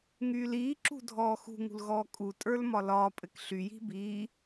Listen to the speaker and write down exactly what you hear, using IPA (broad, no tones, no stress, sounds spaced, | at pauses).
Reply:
ŋ yː l iː ǁ ṳ dʱ ɔː x ṳ ŋ ṳ l ɣ ɔː kʼ u tʼ ə˞ l m ɒ l ɒː pʼ ɘ k ɬ y j i̤ b iː